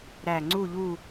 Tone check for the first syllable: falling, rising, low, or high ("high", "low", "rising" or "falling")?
low